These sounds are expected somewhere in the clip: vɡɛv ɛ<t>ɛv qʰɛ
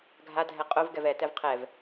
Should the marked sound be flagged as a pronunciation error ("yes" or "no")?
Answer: no